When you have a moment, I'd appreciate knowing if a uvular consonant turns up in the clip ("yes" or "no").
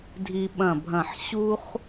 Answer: yes